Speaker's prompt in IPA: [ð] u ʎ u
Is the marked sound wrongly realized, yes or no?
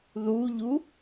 no